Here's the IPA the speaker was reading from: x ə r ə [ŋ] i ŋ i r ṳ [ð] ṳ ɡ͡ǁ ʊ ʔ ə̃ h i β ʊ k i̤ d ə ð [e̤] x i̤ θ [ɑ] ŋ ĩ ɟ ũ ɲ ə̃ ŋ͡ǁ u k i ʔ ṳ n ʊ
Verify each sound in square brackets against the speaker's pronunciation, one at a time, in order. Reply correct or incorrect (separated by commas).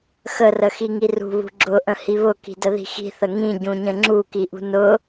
incorrect, incorrect, incorrect, incorrect